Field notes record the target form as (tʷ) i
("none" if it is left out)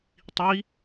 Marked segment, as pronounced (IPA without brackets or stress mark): tˤ